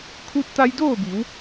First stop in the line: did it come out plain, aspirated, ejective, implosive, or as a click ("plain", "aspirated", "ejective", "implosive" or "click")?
aspirated